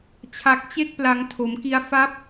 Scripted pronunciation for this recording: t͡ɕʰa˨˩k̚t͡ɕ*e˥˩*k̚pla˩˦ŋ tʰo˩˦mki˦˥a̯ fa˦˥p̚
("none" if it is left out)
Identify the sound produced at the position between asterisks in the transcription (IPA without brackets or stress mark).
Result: e˦˥